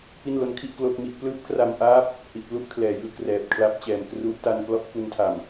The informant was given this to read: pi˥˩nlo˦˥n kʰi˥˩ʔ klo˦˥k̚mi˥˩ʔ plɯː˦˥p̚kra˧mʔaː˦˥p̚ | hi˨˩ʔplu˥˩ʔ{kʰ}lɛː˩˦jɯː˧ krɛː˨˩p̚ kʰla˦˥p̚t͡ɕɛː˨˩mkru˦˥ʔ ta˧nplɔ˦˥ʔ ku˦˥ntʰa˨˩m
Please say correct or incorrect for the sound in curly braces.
correct